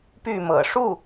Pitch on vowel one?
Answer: falling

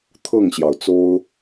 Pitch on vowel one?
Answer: falling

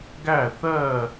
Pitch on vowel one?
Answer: falling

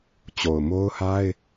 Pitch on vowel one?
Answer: low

